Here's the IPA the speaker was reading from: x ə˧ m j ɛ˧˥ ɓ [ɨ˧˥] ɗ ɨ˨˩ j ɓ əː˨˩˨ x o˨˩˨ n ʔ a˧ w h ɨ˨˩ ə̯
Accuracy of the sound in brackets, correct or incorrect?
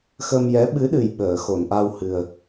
correct